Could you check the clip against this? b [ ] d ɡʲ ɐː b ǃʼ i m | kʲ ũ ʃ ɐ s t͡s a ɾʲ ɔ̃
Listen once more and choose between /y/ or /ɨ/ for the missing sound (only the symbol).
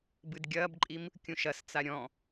ɨ